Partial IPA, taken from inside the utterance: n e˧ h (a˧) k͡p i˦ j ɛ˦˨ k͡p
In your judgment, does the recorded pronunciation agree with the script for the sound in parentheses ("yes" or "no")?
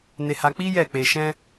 yes